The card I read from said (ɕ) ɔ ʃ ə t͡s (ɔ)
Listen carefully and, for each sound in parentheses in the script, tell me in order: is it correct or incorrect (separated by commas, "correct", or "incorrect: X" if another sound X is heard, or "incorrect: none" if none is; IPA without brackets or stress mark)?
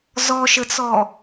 incorrect: z, correct